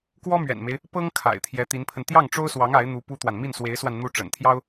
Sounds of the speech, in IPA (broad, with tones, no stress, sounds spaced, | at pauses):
k w ɔ˥ m ɥ ɛ̰˨˩ n m e˦ ɪ̯ | p ɤ˥ ŋ kʰ a̰˨˩ ɪ̯ t̪ʰ j ɛ˧˥ t̪ i˧˥ n pʰ ə˧ n t̪ j ɑ˥˩ ŋ ʈ͡ʂ o˥ ʊ̯ s w ɑ˧˥ ŋ a˧˥ ɪ̯ n̪ u˧˥ p u˥ t̪ w a˨ n m i˥˩ n s w e˧˥ ɪ̯ s w a˧ n n̪ u˥ ʈ͡ʂ ə̰˨˩ n t̪ʰ j ɑ˥ ʊ̯